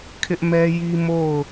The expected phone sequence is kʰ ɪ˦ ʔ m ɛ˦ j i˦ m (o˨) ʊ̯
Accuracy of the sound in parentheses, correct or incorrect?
incorrect